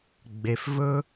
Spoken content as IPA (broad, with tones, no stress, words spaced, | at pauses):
ɡ͡be˩fvɵ˦